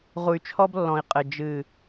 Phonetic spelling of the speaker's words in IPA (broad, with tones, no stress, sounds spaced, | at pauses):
ʁ u˨ y̯ t͡ʃʰ ɔ˦ b lː ɔ̃˨ i̯ qʼ ɘ˨ d͡ʒ ɨ˨